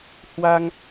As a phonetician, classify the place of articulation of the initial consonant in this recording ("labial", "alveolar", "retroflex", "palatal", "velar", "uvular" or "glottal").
glottal